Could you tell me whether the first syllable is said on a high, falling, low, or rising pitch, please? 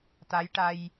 rising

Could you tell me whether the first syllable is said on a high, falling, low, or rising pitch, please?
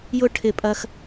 high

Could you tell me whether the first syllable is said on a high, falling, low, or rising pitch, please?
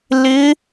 rising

